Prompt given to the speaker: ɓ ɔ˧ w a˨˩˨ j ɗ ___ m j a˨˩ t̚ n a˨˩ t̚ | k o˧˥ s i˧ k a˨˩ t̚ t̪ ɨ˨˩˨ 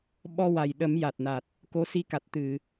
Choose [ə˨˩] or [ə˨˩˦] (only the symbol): ə˨˩˦